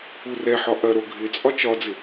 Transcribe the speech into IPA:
u r ɛ ħ ɒ ʔ ɐ ɾ o ɡʱ ɪ t͡sʼ ɒ t͡ʃ ɒ d͡z ɪ

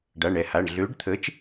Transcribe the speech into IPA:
ɖ a˩˧˩ ɳ ɛ˧˩ h a˩˧˩ ɳ ɮ ø˨˥ ɖ t̪ʰ ə˨˥ t͡ʃ

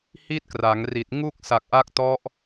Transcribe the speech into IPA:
h i˥˩ t̚ k r a˩˦ ŋ r i˨˩ t̚ ŋ u˥˩ k̚ s a˨˩ k̚ ʔ a˦˥ k̚ t ɔ˦˥ ʔ

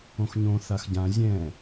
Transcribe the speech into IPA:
õ x ɲ õ θ a x ɟ ã zʲ ɛ̃

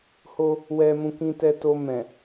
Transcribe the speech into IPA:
h o˧ | w ɛ˨ m ũ˨ k ĩ˧ t ɛ˧ t o˧ m ɛ̃˨

